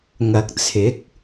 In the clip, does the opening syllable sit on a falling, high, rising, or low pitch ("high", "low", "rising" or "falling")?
low